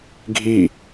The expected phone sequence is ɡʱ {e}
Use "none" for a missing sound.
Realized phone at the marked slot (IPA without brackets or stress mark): i